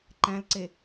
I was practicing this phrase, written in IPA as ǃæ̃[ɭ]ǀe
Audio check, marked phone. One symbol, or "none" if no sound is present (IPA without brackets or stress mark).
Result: l